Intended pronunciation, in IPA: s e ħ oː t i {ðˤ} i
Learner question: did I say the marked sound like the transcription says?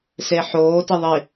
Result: yes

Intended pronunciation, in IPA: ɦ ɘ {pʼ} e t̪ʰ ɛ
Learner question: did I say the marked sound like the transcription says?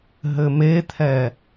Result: no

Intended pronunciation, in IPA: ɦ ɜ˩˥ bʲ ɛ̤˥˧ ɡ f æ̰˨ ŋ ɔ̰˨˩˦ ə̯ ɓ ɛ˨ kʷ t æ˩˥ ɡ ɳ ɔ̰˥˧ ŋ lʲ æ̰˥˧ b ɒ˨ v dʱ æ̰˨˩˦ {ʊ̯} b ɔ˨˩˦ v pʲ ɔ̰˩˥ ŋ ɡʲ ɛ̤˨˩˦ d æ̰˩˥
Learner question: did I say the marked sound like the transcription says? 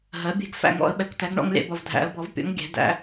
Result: no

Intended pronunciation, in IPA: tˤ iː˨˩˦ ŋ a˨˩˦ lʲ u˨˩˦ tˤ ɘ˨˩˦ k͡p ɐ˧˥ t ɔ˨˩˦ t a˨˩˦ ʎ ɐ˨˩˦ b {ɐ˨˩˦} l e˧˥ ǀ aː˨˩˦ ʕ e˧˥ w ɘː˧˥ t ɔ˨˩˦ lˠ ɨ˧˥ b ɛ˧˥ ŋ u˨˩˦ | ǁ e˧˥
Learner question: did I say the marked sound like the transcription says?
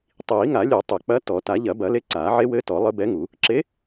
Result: yes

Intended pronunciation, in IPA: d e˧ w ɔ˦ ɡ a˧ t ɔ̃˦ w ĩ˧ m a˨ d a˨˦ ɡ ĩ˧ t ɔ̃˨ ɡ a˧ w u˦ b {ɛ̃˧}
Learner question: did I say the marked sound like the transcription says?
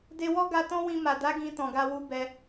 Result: no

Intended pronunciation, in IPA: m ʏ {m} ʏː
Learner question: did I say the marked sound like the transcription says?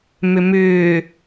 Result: yes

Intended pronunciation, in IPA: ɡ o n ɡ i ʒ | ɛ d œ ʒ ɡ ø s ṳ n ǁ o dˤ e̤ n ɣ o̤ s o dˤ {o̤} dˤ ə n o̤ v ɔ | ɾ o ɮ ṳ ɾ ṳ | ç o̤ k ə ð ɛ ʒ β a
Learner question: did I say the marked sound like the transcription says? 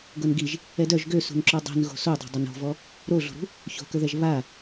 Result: yes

